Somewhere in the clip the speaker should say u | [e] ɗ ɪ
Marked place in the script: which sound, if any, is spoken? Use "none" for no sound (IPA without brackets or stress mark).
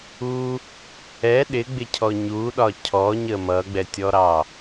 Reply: ɛ